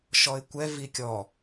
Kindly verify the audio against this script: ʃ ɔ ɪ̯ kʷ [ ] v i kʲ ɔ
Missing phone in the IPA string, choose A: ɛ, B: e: A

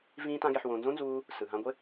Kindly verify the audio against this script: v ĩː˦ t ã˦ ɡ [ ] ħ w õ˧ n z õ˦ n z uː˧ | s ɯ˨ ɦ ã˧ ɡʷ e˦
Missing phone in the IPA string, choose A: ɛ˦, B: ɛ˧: B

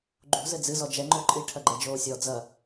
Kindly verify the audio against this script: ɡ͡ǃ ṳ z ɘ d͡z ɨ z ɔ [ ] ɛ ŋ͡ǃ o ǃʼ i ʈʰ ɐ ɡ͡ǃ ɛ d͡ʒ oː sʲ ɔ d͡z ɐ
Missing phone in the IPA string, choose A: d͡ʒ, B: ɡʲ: A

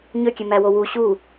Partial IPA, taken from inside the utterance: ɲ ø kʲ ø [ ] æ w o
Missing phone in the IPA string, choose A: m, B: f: A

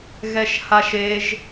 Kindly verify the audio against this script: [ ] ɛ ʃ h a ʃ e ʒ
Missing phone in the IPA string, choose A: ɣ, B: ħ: A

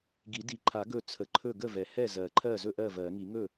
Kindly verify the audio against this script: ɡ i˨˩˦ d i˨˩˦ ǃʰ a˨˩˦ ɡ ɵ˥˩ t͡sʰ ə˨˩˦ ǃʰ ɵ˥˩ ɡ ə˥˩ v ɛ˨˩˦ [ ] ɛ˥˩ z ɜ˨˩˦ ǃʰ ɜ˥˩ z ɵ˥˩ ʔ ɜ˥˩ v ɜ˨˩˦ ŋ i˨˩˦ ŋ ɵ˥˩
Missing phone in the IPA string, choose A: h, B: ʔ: A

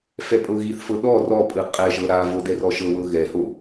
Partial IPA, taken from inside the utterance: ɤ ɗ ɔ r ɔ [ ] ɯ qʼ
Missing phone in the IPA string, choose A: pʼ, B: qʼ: A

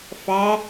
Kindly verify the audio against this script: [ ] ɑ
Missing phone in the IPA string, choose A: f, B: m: A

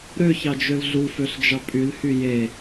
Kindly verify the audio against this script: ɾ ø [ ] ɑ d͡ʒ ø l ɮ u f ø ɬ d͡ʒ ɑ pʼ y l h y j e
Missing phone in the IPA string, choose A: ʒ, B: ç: B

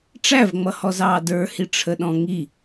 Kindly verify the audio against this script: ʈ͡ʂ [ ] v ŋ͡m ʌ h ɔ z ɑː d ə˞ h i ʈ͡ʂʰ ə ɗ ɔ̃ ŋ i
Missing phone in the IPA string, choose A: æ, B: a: A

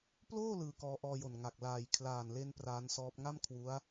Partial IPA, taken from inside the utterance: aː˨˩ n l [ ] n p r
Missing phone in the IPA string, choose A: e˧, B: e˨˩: A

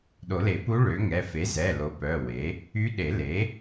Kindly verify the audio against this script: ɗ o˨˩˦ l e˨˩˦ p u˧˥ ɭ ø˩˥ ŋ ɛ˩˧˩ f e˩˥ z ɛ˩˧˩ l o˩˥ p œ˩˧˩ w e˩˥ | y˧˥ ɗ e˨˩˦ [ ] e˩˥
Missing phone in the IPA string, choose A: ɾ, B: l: B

